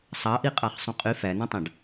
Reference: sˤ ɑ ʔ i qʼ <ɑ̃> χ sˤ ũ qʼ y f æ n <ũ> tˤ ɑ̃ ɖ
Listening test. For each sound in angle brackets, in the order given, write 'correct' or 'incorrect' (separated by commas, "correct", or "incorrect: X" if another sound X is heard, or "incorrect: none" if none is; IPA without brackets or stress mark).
incorrect: ɑ, correct